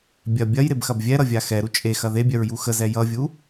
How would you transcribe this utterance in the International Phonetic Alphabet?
bʲ ɐ bʲ ɐ j ɾ e b x ɐ b vʲ ɛ ɾ ʌ vʲ a x ɛ ɾ u t͡ʃʼ e x ɐ ð e bʲ œ ɹ j u x ə z ɛ j ʌ vʲ u

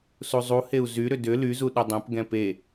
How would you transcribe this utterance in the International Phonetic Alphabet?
s u zˤ u h e u̯ z y ɾ ʏ d ʏ l y z u ɗ ʏ dˤ ɛ̃ p ɡ ɛ̃ p e

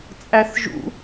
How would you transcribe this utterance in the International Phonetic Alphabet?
t͡sʼ æ θ ʒ ṵ

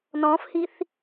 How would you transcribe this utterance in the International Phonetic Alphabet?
n ɔ̃ f h i θ

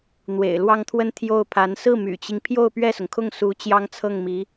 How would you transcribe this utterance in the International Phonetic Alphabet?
n̪ w ḛ˨˩ ɪ̯ l w ɑ˥˧ ŋ t̪ʰ w ə˥˧ n t̪ʰ j o˥˩ ʊ̯ pʰ a˧˥ n s ɹ̩˥˩ m y̰˨˩ t͡ɕ i˦ ŋ pʰ j o˥˧ ʊ̯ p ɥ ɛ˥˩ s ʊ˩ ŋ kʰ ʊ˥˩ ŋ s u˧˥ t͡ɕ j ɑ˥ ŋ t͡sʰ ɤ˥˩ ŋ m i˧˥

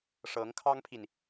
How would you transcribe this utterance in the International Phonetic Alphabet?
ʂ ɤ˧˥ ŋ kʰ ɑ˥ ŋ pʰ i˨ n

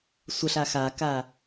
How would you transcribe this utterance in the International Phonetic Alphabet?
sʷ ə ɬ a x a k a

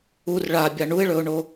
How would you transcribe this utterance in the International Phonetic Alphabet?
u r ɭ a bʲ a ɳ u ɪ̯ ɭ ɵ ʊ̯ ɳ o

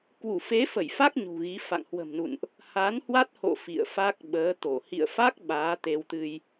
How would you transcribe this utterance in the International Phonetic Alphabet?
k w u˧˩ f e˨˦ f ə˧˩ j f a˦˥ k̚ ɲ ṳ˨˩ ɣ i˨˦ f a̰˧˨ ŋ h w ə̤˨˩ m n ṵ˧˨ n ʔ | h a˨˦ n h w a˦˥ t̚ h o̰˧˨ f ḭ˧˨ ə̯ f a˦˥ k̚ ɓ əː˨˦ t̪ o˧˩ h ḭ˧˨ ə̯ f a˦˥ k̚ ɓ aː˨˦ t̪ e˧ w t̪ ɨ˧ j

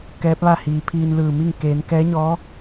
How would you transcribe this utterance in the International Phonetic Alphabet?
k ɛː˧˥ p̚ ʋ a˥˨ h iː˩˧ pʰ iː˧ n l ɯː˧˩ m i˥˨ ŋ k eː˩˧ n k ɛː˧˥ ɲ ɔː˧˥

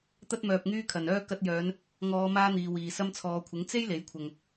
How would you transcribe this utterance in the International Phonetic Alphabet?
t̪ ɐ˧ t̚ m œː˨ p̚ ŋ yː˧ kʰ ɐ˨ n œː˥ k ɐ˧ t̚ j œː˨˧ n | ŋ ɔː˨˧ m aː˥ n̪ iː˨ w iː˨ s ɐ˧ m t͡sʰ ɔː˨ kʷʰ ɪ˨˥ ŋ t͡s e˥ j l e˨˥ j kʷʰ ɐ˨ ŋ

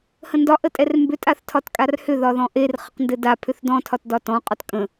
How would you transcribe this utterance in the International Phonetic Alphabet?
h ə̃ n d ɒ ʔ ə tʼ ɛ r m b ʏ tʼ a θ tʰ ɒ t kʼ a r h ʏ ð ɒ ð ɔ̃ ʔ e r χ ə q n d ɘ d a pʰ ʏ θ d ɔ̃ tʰ ɒ t d ɒ t ɔ̃ qʼ ɒ t kʼ ə̃

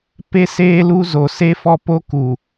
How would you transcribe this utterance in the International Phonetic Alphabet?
p e˦ s eː˦ l u˦ z o˨ s e˦ f ɔ˦ p o˦ k u˨

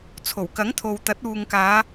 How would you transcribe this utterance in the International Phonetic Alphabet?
t͡sʰ o˨˩ w k ɐ˨˥ ŋ t̪ʰ o˨ w t̪ ɐ˨˥ t̚ uː˨ ŋ k aː˨˧

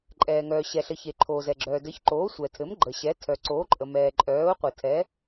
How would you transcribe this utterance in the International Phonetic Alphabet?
ǃʼ ɛː˩ ŋ œː˩ ɕ ɛ˩ ɬ ɘ˩ ç e˩ ǃʰ oː˩ z ɛ˩ ɡ͡ǁ œː˩ d ɘ˩˥ ç ǃ oː˩˥ sʷ ɛ˩ tʰ ɘ˩˥ m ɡ͡ǃ ə˩ ɕ ɛ˩˥ tʰ œ˩ ǀ oː˩˥ ǃʼ ə˩ m ɛː˩ ǃʼ œː˩˥ ʊ̯ qʷ ɘ˩ tʰ ɛ˩˥

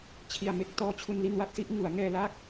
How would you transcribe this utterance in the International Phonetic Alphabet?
t͡ɕʰ i˨˩ a̯ m e˦˥ k̚ t ɔː˧ t͡ɕʰ u˧ n l i˧ n w a˥˩ t̚ s i˦˥ ʔ ŋ u˩˦ a̯ ŋ ɛː˧ l a˥˩ k̚

